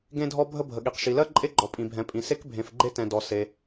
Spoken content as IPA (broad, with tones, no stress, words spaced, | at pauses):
ɡẽ˥dʱɔ˥ bʱə˥bʱə˩ɠi˩q ʃi˩lɜ˥ ǃʼe˥ɡ͡ǃɔ˩pʼĩ˩bʱɛ̃˩ pʼĩ˩se˥k bʱẽ˩fɡ͡ǃe˥tɛ̃˩ dɔ˩se˩